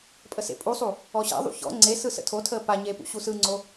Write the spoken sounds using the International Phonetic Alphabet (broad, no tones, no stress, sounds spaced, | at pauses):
pʼ ə s ḛ pʼ u sˤ u | ɔ ɕ a̰ ðˤ ṵ ç ɔ̰ ŋ͡ǀ e s ɯ s ə̰ tʰ o tʰ əː p a ɲ e p ṵ ɕ u s ɯ ŋ͡ǀ o